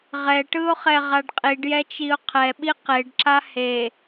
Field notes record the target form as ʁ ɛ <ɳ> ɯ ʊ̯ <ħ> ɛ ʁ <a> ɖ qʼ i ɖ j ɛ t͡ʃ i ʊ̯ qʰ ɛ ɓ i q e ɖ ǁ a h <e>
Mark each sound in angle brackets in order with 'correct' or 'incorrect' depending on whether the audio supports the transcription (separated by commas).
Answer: incorrect, incorrect, correct, correct